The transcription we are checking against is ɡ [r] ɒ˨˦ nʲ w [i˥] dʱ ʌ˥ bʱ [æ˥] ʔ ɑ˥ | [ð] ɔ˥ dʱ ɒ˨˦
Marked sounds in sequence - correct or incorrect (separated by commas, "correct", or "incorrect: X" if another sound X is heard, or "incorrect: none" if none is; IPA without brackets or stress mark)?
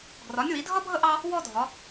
correct, incorrect: i˨˦, incorrect: ə˥, incorrect: w